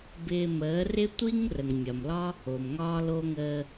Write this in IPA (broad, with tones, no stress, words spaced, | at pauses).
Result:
bɪː˧məː˨˦rɪ˦ tʷi˦ŋ rə˨ŋmʲɒ˨mlɒ˦ | o˨mŋɒː˦lo˦ ŋəː˧